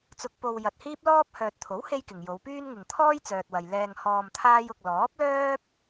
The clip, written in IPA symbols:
t͡sʊ˧k̚po˧w jɐ˧t̚ hiː˥p̚lɔː˥p̚ hœː˨t̚t̪ʰo˨˥w he˥jkɪ˨ŋ jo˨˧wpyː˥nŋɪ˨ŋ t̪ʰɔː˥jt͡sœː˨t̚wɐ˨j lɛː˧ŋ hɔː˧mt̪ʰaː˥jʊ˧k̚ lɔː˨˥p̚lœː˥p̚

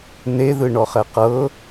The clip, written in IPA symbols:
neðɯ ɳɔχɛqɤ

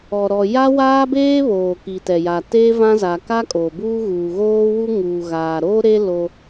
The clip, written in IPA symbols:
ɔ˨ɾɔ˨ ja˦waː˦beː˦βoː˨ ki˨tɛ˨ja˨ teː˦vã˦za˨ ka˦kʼoː˨ buː˦ ɣuː˨ɣoː˦wu˦ ŋuː˨ɣaː˨ɾoː˦ɾe˦ lo˦

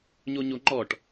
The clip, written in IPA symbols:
ɲoɲoŋ͡ǃɔʈ

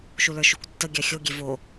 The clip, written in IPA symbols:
ʃulə˞ʃukʷtːə ɡʲaxʲo ɡʲevo

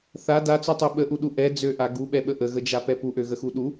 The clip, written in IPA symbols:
θa dat͡søtˤø ɓəʔuɗu ʔɛ d͡zøʔa ɡuɓɛɓə ʔəɣəd͡ʒapɛ puʔøɣəxu ɗu

